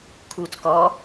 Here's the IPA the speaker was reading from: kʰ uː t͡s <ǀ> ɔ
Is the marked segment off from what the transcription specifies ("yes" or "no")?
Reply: yes